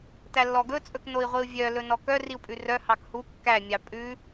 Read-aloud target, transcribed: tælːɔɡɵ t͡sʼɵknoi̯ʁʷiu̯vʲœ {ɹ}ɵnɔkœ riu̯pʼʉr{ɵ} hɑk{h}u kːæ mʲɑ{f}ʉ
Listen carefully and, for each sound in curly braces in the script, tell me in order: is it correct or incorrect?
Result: incorrect: l, incorrect: œ, correct, incorrect: pʼ

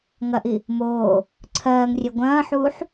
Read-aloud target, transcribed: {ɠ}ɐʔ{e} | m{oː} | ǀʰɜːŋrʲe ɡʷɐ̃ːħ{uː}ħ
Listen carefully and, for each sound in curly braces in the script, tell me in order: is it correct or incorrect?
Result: incorrect: ŋ, incorrect: i, correct, correct

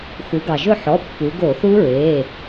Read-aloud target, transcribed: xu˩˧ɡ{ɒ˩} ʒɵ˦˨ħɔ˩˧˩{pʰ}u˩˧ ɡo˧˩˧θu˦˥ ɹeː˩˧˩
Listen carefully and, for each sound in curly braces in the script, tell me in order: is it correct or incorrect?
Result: incorrect: ɑ˩, incorrect: pː

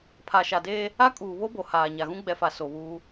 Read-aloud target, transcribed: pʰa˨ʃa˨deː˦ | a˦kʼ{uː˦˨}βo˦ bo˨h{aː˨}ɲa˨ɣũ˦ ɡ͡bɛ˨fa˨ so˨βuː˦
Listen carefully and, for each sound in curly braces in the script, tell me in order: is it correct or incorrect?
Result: incorrect: uː˨, correct

